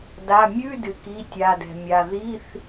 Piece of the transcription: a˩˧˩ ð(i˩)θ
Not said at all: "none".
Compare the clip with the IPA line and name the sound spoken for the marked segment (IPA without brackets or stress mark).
i˧˥˧